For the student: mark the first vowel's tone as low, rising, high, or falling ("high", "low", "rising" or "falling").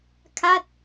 falling